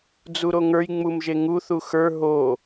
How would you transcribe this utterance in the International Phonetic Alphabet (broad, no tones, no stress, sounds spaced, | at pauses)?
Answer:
d͡z u ɾ o ŋ ə˞ j ŋ͡m u m ʒ e ŋ u θ u x ə˞ ɦ o